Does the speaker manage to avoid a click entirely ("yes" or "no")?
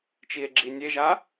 no